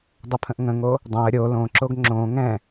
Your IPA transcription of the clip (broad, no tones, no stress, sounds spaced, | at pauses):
dˤ ə pʰ ə̃ ʔ ŋ ə̃ ŋ o | dˤ õ ə̯ ɾʲ o l õ ǁ o ɡ ŋ͡ǁ õ ŋ ɛ̃